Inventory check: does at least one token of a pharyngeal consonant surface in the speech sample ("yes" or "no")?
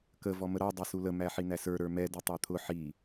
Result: yes